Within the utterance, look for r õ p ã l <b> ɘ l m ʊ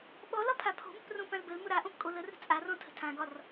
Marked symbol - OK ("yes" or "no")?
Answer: yes